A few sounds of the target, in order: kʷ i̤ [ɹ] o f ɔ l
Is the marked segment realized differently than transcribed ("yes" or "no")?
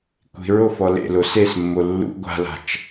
no